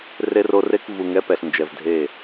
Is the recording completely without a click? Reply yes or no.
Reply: yes